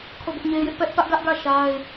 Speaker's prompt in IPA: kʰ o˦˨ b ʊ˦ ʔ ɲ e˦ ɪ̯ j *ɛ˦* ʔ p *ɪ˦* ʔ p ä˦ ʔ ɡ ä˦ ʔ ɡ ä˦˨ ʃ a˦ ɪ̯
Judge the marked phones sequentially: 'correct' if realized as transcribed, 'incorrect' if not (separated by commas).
incorrect, incorrect